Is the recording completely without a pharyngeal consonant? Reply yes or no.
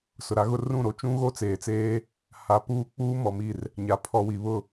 yes